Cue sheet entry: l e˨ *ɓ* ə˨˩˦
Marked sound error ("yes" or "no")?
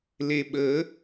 no